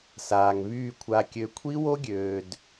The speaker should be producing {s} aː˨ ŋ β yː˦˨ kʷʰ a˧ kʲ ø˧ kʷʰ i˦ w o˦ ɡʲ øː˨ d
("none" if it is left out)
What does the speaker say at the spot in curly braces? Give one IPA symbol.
s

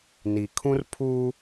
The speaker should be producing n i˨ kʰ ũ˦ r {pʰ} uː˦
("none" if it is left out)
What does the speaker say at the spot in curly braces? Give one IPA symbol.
pʰ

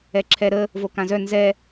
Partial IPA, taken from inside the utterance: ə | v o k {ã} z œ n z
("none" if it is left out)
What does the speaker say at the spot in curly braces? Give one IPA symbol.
ã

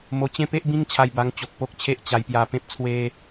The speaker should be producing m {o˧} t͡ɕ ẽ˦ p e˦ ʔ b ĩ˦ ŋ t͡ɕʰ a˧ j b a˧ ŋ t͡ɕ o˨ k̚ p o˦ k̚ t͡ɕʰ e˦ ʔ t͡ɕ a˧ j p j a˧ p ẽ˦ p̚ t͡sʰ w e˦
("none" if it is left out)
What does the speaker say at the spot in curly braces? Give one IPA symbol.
o˧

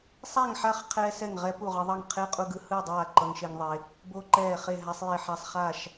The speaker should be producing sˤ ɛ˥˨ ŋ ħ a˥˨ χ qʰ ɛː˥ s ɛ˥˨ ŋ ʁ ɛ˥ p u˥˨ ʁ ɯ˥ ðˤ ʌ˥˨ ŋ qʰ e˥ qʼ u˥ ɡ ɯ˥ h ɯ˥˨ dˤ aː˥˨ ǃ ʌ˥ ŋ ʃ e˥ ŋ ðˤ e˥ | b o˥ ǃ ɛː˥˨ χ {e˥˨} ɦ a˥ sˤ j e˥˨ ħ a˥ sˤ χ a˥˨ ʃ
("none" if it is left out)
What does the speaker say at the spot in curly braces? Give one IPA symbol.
e˥˨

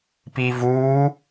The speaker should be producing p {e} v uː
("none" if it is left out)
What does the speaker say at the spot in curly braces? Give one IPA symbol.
i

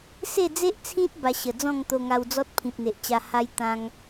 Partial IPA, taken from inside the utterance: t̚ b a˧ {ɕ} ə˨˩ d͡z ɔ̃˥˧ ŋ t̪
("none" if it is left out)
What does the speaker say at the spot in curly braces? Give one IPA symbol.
ɕ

